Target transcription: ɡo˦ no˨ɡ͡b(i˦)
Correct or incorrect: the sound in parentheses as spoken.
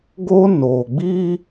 correct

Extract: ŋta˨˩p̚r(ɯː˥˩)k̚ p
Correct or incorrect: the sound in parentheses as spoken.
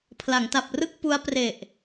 incorrect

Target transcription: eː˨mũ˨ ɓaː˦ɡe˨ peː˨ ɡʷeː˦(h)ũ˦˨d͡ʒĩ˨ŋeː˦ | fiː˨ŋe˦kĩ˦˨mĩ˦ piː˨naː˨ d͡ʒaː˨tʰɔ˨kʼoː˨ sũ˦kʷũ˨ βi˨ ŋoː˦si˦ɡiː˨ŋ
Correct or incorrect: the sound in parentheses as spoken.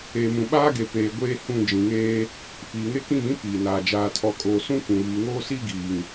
correct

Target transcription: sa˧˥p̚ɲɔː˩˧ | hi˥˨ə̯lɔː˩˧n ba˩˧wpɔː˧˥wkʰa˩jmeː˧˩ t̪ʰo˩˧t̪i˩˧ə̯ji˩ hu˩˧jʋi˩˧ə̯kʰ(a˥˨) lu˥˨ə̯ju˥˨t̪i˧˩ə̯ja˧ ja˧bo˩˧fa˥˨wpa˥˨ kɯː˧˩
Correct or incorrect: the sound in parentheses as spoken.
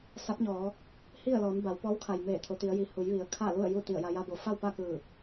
correct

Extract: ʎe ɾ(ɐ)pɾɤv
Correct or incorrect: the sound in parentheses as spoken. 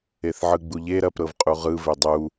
correct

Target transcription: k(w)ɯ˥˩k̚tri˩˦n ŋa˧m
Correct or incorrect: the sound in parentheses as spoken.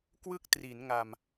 correct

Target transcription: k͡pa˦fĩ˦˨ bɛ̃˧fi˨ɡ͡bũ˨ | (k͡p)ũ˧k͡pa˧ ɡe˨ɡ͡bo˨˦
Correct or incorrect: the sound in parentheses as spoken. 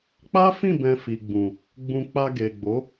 incorrect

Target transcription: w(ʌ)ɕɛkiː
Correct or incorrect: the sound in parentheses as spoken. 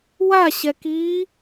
incorrect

